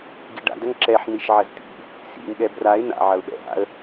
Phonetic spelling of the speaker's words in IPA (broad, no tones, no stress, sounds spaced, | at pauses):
ɡ i ɖ a̰ d ɐ ŋ ǁ ɛ ħ n̪ i ʃ ʕ ɐ z t̪ ḭ | s ḭ ŋ ɠ ɛ b r a ɪ̯ n̪ a̰ ʕ ɐ ʊ̯ ɓ ɛ̰ ɦ a̰ ə̯